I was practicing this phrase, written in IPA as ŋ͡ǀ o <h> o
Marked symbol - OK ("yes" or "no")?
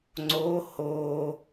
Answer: yes